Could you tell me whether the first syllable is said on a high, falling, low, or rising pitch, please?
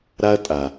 high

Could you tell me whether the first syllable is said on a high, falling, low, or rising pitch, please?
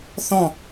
falling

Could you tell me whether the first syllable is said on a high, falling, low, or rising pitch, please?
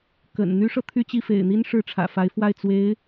low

